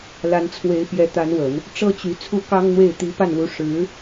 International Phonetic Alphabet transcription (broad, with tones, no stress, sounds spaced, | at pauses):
l a˧˥ n t͡sʰ w e˧˥ ɪ̯ p j ɛ˧˥ t̪ a˧˥ n w ə˨˩˦ n | ʈ͡ʂ ɤ˥ t͡ɕ y˧˥ t͡sʰ u˥˩ k ɑ˥ ŋ n̪ w e˥˩ ɪ̯ t̪ i˧˥ p a˥˩ n l u˧˥ ʂ ɻ̩˧˥